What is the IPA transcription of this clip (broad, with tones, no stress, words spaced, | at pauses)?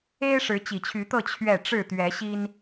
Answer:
e˦ɪ̯ ʂɻ̩˨˦t͡ɕi˨˩t͡ɕʰy˨˦t̪ɤ˥˨ t͡ɕʰɥɛ˥˨ ʈ͡ʂɻ̩˥˨t̪ɥɛ˨˦ɕi˦n